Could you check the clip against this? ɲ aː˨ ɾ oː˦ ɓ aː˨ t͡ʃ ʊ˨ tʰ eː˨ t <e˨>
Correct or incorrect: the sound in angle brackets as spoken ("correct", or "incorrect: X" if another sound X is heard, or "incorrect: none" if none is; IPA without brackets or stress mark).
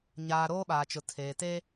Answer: incorrect: e˦